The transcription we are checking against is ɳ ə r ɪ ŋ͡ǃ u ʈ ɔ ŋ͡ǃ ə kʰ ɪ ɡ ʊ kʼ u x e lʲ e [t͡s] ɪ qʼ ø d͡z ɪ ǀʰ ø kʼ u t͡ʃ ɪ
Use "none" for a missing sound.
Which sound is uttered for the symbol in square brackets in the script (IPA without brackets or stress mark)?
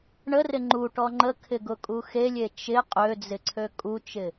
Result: t͡ʃ